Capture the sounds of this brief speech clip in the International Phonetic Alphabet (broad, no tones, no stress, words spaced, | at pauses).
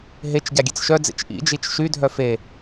ɦet͡ʃ ɟaɡʲet͡sʃœd͡zḛt͡ʃ ʔḭd͡ʒit͡ʃ ʃydʱœ fe